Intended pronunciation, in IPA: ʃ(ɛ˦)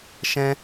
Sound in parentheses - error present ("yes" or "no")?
yes